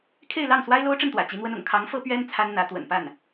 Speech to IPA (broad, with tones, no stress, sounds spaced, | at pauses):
kʰ e˥˧ ɪ̯ l ɑ˥˩ ŋ s w a˥ ɪ̯ l o˥ ʊ̯ ʈ͡ʂ ə˥˩ n t̪ w ä̰˨˩ t͡ɕ i˧˥ n̪ w ə˥ n ʊ̰˨˩ ŋ kʰ ɑ˧˥ ŋ f ɤ˥ p ɥ ɛ˥ n t͡sʰ a˥ n n̪ ä˧˥ t̪ w ə̰˨˩ n p a˥˩ n